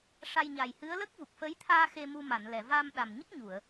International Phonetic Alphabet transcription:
ʂ a˧ j ɲ a˨˩ j h ɨ˧˥ ə̯ l ə˦˥ k̚ v u˨˩ k̚ f ə˧˥ j t̪ʰ aː˧ x e˧ m u˧ m a˨˩˨ n l ɛ˨˩˨ v a˧ m ɗ a˨˩ m ɲ ə˦˥ k̚ ɲ u˨˩˨ ə̯

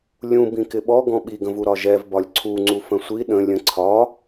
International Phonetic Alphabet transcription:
lʲ ũ b ĩ k ɪ ɓ ɔ ɡ ɔ̃ ɓ i ɡ ə̃ v u ɾ ɒ ʒ ɛ v b ɒ lʲ ǀʰ u ŋ͡ǀ u f ə̃ sʷ i ɗ ə̃ lʲ ə̃ ǀʰ ɒ

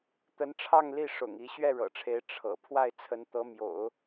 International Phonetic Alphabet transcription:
t̪ ə˧˥ n ʈ͡ʂʰ ɑ˥˧ ŋ l i˥˩ ʂ ʊ̰˨˩ ŋ i˧˥ ɕ ɥ ɛ˥˩ ɻ ɤ̰˨˩ ʈ͡ʂʰ e˧˥ ɪ̯ ʈ͡ʂʰ ɤ̰˨˩ pʰ w a˥˩ ɪ̯ t͡sʰ ə˧˥ n t̪ ɤ˧˥ m j o̰˨˩˦ ʊ̯

